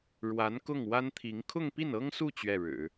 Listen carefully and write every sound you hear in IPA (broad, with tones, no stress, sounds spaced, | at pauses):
ɻ w a˧˥ n k ʊ˥˩ ŋ w a˥ n t̪ʰ i˧˥ ŋ kʰ ʊ˥˧ ŋ p i˥˩ n ɤ˥ ŋ s u˥˧ t͡ɕ ɥ ɛ˥˩ ɻ ɻ̩˨˩˦